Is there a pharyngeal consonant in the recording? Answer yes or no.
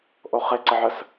yes